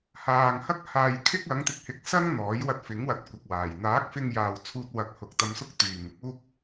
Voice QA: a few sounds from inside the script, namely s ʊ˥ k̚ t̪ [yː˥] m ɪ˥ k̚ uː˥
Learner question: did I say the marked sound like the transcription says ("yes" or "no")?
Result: no